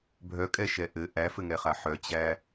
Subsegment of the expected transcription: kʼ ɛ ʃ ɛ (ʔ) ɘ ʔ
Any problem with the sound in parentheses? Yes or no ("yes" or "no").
no